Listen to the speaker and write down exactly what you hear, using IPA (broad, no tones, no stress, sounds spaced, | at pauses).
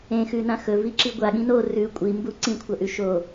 ẽ x ʉ n ã x ɵ v i ǁ i ɡʷ a ɠ ĩ n o r ʉ kʷʼ i m b u ǀ ĩ kʷʰ ɐ ʔ ʉ ʃ o